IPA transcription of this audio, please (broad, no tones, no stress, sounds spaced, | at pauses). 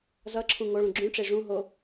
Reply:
z ʌ ǁʰ ũ ŋ o ɭ ũ ɡ͡ǁ ũ ʈ͡ʂ e ʐ ũ ɦ o